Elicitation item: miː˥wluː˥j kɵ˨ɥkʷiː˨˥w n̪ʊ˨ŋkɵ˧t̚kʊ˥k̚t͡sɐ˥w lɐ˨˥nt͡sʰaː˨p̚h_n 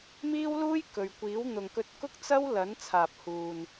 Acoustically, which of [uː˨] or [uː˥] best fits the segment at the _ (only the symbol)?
uː˨